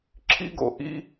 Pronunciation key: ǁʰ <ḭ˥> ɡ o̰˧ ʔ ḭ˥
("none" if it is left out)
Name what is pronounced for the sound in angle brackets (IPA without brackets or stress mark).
ḭ˥